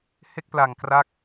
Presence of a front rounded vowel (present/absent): absent